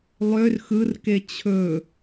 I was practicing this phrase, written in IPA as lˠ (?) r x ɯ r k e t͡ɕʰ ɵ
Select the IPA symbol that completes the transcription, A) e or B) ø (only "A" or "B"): B